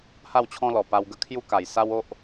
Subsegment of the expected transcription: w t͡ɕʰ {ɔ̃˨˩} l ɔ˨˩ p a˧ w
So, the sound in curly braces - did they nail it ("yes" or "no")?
no